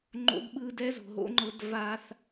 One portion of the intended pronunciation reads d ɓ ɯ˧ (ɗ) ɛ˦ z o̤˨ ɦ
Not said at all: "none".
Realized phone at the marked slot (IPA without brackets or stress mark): d